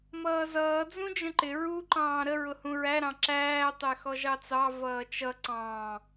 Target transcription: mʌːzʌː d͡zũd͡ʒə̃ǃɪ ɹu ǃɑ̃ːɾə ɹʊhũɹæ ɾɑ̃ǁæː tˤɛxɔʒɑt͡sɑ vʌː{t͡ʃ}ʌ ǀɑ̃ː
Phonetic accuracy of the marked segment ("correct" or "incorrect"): correct